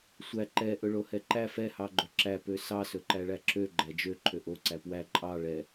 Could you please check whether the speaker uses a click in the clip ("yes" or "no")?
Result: yes